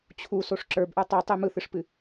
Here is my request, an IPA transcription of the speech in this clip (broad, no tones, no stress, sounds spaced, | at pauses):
t͡ɕʰ u s o ʂ ǁ ə˞ b ʔ ə˞ tˤ ɯ tˤ ɨ m ɯ θ ɨ ʂ p ɨ